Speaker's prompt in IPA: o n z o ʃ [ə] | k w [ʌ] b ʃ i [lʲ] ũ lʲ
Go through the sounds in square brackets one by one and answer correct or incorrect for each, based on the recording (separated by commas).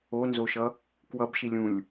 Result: incorrect, correct, correct